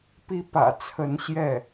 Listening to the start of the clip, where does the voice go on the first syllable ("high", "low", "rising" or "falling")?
high